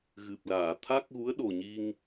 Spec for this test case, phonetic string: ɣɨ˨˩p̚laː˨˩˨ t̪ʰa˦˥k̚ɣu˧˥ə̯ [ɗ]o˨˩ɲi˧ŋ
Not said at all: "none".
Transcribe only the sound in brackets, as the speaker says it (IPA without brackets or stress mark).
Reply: ɗ